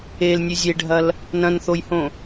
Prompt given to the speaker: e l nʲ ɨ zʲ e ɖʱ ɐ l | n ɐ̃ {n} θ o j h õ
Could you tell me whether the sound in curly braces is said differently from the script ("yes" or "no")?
no